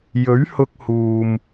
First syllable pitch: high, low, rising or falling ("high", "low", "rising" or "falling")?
rising